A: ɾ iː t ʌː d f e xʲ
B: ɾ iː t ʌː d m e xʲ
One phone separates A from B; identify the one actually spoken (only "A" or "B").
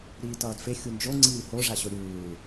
A